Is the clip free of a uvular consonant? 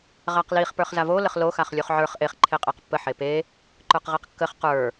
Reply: no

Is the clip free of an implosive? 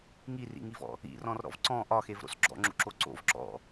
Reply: yes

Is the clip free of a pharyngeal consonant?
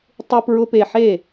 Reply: no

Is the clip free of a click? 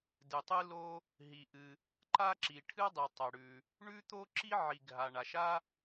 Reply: no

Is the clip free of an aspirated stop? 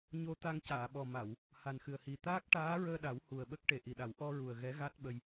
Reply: yes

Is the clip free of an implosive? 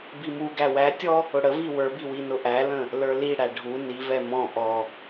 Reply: yes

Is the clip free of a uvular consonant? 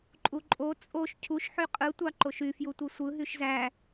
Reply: no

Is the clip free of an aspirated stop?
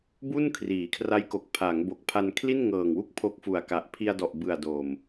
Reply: no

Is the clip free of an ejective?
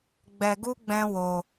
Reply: yes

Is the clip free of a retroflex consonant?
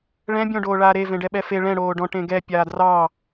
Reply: no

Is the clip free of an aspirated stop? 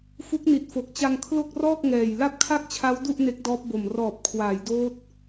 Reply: no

